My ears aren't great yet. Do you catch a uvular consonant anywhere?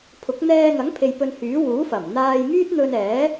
no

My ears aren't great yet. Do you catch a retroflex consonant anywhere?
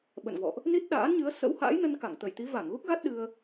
no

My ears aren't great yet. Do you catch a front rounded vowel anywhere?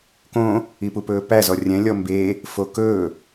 no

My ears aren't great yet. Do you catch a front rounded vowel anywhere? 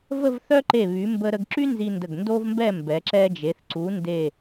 yes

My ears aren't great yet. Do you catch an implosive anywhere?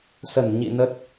no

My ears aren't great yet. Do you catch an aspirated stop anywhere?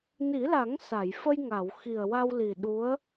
no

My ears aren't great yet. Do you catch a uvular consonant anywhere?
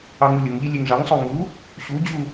no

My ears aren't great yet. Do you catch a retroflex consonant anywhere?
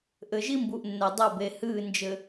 no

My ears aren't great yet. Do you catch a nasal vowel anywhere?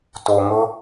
no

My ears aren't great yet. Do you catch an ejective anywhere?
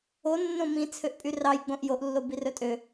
yes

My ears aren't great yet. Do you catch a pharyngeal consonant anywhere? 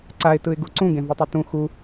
no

